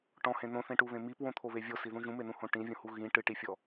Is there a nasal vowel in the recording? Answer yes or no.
yes